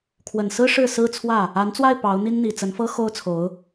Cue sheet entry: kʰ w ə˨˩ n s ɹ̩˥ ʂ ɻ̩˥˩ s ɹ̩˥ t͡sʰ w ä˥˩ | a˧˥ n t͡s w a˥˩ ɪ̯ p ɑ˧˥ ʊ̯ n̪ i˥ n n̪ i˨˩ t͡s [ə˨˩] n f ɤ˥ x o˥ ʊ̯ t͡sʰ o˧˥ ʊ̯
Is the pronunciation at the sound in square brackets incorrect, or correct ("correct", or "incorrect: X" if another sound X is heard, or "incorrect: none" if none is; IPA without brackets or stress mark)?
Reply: incorrect: ə˧˥